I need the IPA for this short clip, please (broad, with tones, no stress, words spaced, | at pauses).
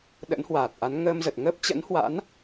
ɗə̰˧˥nhwaː˨˩t̚ʔa˨˦n ŋəː˧mzə˨˩t̚ ŋə˦˥p̚t͡ɕə̰˧˥nhwa̰˧˥n